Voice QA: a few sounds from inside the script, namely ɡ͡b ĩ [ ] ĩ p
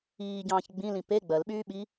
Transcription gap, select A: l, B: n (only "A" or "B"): A